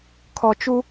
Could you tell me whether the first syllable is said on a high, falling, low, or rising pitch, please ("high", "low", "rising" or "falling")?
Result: low